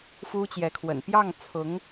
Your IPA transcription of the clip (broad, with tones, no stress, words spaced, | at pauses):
fu˥t͡ɕjɛ˧˥kʰwə̰˨˩n pjɑ˥˩ŋt͡sʰʊ˧˥ŋ